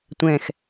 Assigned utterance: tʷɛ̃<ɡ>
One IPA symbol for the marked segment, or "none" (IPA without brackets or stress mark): x